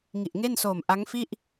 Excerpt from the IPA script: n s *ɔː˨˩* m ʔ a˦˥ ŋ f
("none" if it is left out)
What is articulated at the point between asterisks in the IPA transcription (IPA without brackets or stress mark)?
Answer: oː˨˩